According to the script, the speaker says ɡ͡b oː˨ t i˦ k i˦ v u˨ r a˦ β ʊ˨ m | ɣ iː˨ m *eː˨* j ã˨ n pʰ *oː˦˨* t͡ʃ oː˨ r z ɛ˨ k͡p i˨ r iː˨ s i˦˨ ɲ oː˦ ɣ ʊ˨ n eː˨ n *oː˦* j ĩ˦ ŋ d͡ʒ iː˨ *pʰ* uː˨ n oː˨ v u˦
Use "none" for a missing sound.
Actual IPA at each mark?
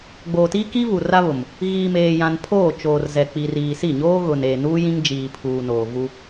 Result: eː˨, oː˦˨, uː˦, pʰ

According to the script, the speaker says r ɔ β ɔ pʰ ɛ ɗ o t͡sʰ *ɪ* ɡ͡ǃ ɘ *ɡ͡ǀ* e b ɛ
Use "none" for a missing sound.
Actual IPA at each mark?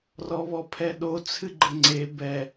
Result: ɨ, ŋ͡ǀ

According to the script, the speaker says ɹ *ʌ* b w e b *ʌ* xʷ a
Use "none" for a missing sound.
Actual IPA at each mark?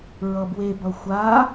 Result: ʌ, ʌ

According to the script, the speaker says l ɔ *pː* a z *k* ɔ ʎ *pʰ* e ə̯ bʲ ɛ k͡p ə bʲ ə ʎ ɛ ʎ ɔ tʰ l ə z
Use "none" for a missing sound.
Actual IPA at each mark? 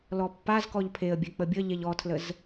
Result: pː, k, pʰ

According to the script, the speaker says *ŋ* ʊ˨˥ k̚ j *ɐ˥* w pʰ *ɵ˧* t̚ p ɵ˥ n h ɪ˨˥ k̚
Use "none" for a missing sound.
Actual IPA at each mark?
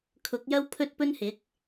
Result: kʰ, ɐ˥, ɵ˥

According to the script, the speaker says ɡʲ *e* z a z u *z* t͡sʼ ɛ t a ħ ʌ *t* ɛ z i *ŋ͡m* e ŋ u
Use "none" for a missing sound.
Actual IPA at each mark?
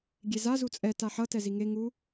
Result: e, none, t, ŋ

